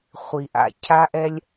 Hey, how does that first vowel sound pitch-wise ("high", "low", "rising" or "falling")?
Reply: low